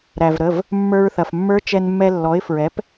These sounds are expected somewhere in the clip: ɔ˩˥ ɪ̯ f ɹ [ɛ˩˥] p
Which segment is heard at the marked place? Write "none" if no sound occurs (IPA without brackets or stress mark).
ɛ˩˥